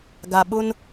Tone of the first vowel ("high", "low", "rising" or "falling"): low